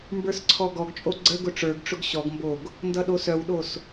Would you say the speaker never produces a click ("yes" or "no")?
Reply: no